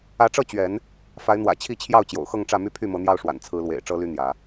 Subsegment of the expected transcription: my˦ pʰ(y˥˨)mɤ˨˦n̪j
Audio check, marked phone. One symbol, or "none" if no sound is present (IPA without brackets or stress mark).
y˥˨